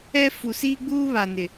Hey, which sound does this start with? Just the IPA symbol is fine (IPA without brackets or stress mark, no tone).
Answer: ɛ